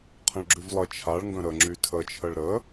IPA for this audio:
qʰ ə̃ ɭ ɡ͡ǁ y v lˠ ə t͡ʃʰ a ɭ ŋ ɡ ə̃ ɾ ə ŋ͡ǁ y tʰ ə t͡ʃʰ ə ɭ ɾ ə

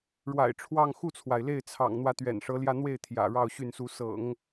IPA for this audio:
ɻ w a̰˨˩ ɪ̯ ʈ͡ʂʰ w ɑ˥˧ ŋ x u˥˩ t͡sʰ w a˩ ɪ̯ l e˥˩ ɪ̯ t͡sʰ ɑ̰˨˩ ŋ n̪ w ä˧˥ t̪ ɥ ɛ̰˨˩ n ʂ ɤ˧˥ l j ä˥˧ n̪ w e˥˩ ɪ̯ t̪ʰ j ä̰˨˩ ɻ ɑ˥˧ ʊ̯ ɕ y˥˩ n s u˧˥ s ɤ̰˨˩˦ ŋ

